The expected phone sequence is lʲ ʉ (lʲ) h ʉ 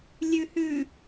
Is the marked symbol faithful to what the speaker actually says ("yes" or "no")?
no